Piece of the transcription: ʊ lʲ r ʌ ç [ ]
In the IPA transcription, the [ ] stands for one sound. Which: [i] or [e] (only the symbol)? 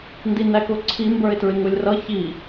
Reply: i